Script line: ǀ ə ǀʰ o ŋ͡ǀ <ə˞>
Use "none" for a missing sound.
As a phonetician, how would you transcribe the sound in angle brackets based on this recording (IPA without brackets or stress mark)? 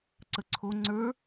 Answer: ə˞